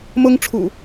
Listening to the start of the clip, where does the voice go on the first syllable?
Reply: high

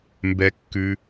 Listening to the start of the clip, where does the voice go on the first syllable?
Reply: rising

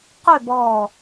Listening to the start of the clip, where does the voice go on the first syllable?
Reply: falling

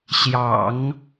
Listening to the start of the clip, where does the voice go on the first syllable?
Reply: low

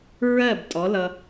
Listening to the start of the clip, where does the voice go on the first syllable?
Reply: falling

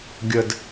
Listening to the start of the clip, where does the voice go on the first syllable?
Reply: high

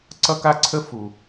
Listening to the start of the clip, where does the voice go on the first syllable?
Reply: high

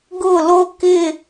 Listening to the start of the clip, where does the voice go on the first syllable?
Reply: falling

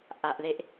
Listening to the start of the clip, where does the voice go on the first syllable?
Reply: low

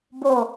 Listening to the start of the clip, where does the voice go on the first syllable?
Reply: falling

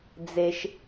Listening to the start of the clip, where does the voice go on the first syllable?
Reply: low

